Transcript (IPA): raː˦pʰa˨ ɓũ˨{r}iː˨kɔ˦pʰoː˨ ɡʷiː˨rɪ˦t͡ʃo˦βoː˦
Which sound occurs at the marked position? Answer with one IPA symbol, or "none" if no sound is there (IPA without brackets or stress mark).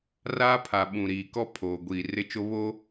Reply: ɾ